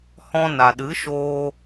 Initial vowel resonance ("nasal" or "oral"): nasal